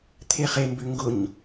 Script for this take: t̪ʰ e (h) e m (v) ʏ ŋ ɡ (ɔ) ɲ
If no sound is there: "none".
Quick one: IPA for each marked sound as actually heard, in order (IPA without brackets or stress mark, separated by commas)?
χ, b, ʊ